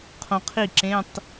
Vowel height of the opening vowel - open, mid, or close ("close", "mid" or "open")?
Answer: mid